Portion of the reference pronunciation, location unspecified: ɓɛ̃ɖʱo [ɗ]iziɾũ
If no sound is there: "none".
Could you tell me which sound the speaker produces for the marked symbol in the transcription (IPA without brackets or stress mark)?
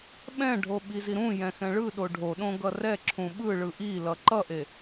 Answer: ɓ